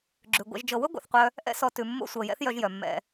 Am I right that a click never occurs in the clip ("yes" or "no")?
no